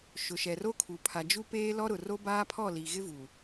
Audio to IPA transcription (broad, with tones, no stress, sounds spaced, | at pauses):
ʃ ʊ˨ ʃ ɛ˨ r o˦ kʰ u˨ pʰ a˨ d͡ʒ u˦ p eː˦ l ɔ˦ ɾ ʊ˨ r o˦ b aː˦ pʰ ɔ˦˨ l i˨ ɣ ɪ˦ v u˨